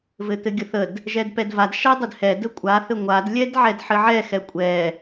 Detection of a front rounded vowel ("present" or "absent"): absent